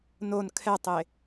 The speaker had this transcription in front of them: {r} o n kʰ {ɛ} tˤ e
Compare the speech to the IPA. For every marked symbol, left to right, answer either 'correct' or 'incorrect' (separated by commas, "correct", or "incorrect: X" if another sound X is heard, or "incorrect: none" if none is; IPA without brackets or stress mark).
incorrect: n, correct